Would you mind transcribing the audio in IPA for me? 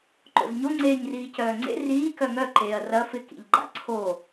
ǃ o̰ z ɲ o ŋ͡ǀ eː ɲ r iː c œː ŋ͡ǀ ḛ r iː k œ ŋ œ ǃ eː ɐ̯ r ɐ f ɪ k ḭ ʎ ɡ͡ǃ a̰ ǀʰ o

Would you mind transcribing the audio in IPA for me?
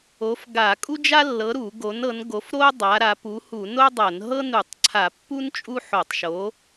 o˨˥ f ɡ a˧˩˧ kʼ u˥ d͡ʒ a˥ lː ɤ˨˥ ɾ u˧˩˧ ɡ o˨˥ n ɤ˨˥ n ɡ o˨˥ f ɾ o˥ dˤ a˨˥ ɾ a˨˥ p u˨˥ h u˧˩˧ n o˥ dˤ ɤ˧˩˧ n ɦ ɤ˥ n u˧˩˧ tˤ ǀʰ a˧˩˧ pː u˥ n t͡ʃʼ u˥ ħ o˧˩˧ tˤ ʃ o˨˥

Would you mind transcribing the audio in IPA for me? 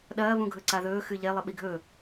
ɗ ɐː β ũ ɡʱ ɵ ǀ a ð ɵː x ɨ ʎ e lˠ ɨ ɓ i ɡʱ ɵ

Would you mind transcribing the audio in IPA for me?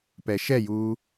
p ɛ ʃ ɛ j uː

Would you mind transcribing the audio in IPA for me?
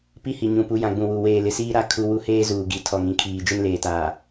p i˦ h i˨ ɲ ũ˨ p u˨˦ j ã˨ ɡ͡b ũ˨ w u˨ w eː˨ l ɪ˨ s iː˦ ɾ a˦ kʰ u˦ w u˦ h eː˦ z uː˨ ɡ i˨ tʰ ɔ˨ ŋ ĩ˦˨ kʰ iː˨ d͡ʒ ɪ˦ n l eː˨ t aː˨

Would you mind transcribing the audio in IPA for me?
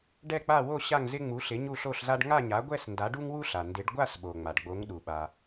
ɖ ɛ˥˧ k͡p a˥˧ w o˥˧ ɕ a˥˧ ŋ z ɪ˥ ŋ͡m u˨˥ ɬ ɪ˨˥ ɲ u˥˧ ɬ o˥˧ ɬ z a˥ ɖ ŋ a˥˧ ɲ a˨˥ ɡʷ ɛ˥˧ s n d a˨˥ ɖ u˥ ŋ w u˥ ɬ a˩ n d ɪ˨˥ ɖ ɡʷ a˥˧ s ɓ o˩ ŋ͡m a˩ ɖ ɡ͡b o˨˥ ŋ ɗ u˩ ɓ a˩

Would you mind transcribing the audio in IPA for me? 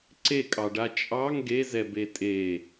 ǀ e kʼ ɑ ɖ a t͡ʃʼ ɑ ŋ ɡ e z ɛ b e tʼ e

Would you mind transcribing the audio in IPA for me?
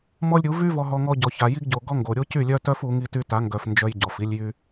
m ɔ˦ lʲ ɾʲ u˨˦ v y˦ v ɔ˦ ɦ ɔ˦ ŋ ɔ˦ ɟ ɔ˨ ç a˨ j i˦ ɡ ɟ o˨ ɡ ɔ˦ ŋ ɡ o˨ ɾʲ o˦ c y˦˨ lʲ œ˦ t œ˦ f u˨˦ ŋ i˦ t y˦ t a˨˦ ŋ ɡ œ˨ f n d͡ʒ œ˦ j ɟ ɔ˨ f i˦ lʲ j y˦

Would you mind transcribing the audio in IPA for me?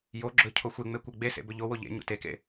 j o ɡ͡ǁ ɵ cʰ o xʷ e ŋ͡m e kʷ e ɡ͡b e s ḛ b ɵ ʎ o w o ʎ ḛ ɲ ṵ t e k ḛ

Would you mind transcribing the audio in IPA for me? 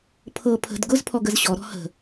pʰ ɤ pʰ ə̤ d ɡ ʊ z pʰ ɔ ɡ ə z ɕ ɔ ɾ ɔ̤ h ə̤

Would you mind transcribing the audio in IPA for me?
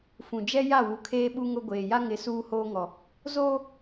f ũ˨ d͡ʒ ɛ˦ j a˦˨ w u˨ kʰ eː˦ ɓ u˦ ŋ ʊ˦ ɡʷ eː˨ j a˦ ŋ ɪ˨˦ s uː˦ h oː˦ ŋ ɔ˨ | z oː˦

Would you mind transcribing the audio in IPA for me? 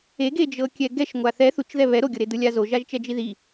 e ɡ e d͡ʒ ɤ kʲ ɛ ɡ ɛ ʃ ŋʷ a θ ɛ θ u t͡ʃ ð ɛ β ɛ ɾ o ɡʲ ɤ ɾ e d ɯ lʲ a z o ʒ a ʒ t͡ʃ ɛ d͡ʒ i ð i

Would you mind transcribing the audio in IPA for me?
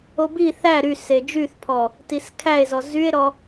o b i θ æ ɾ y s e d͡ʒ y θ pʰ ɔ | t i s kʰ æ e̯ z ɔ z y e̯ ɾ ɔ

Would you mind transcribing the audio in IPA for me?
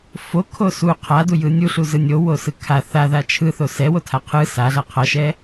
f o kʰ o s u qʰ a d u j ɯ nʲ u ɬ u z ɯ nʲ o w o s ɯ kʰ a θ a ð a t͡ʃʰ ɯ θ o s ɛ w o tʰ a qʰ ɯ s a ɮ a qʰ ʌ ʃ ɛ

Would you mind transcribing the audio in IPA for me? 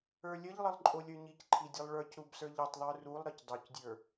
ə˞ lʲ ə ʎ lˠ ə lˠ ǃʼ o lʲ ə˞ ɲ i c ǃʰ i dʲ ɘ lˠ ɭ ə˞ c ɾ u b s ə˞ ʎ i tˤ ðˤ ə˞ r u lˠ ɾ ɘ c dˤ u c dʲ ə˞

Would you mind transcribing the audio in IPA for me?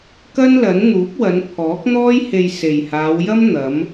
k ɐ˥ n l ɐ˨˥ n n̪ uː˨˥ p̚ w ɐ˨˧ n pʰ ɔː˨˥ k̚ n̪ ɔː˥ j h e˧ j s e˨˩ j h aː˨˧ w j ɐ˥ m n̪ ɐ˨˧ m

